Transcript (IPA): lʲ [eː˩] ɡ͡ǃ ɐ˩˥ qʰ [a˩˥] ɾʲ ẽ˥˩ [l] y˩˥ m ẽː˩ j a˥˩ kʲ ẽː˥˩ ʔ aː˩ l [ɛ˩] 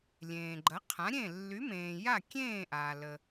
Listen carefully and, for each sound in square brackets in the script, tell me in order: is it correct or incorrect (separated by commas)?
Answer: incorrect, incorrect, incorrect, incorrect